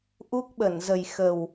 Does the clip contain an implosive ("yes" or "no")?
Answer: yes